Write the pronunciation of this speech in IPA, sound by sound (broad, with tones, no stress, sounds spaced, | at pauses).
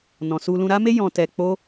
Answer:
n ɔ̃˨ s u˧ l ũ˧ ɾ a˦ m e˦ j ɔ̃˧ t ɛ˧ k͡p o˦